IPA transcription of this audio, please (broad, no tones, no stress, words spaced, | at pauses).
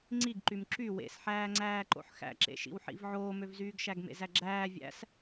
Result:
ŋ͡ǀiɡǃym ǁy wḛsħæːŋ͡ǀæːǃo̰ħ xæ̰ǁḛʃḭwħḭv ʕoːmøvzyːɡ ʃæɡmḛzæɡ͡ǁæː vʲæ̰s